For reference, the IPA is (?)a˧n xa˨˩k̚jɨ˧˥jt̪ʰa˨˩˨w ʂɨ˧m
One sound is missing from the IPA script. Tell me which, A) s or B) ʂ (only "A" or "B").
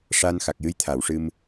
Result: B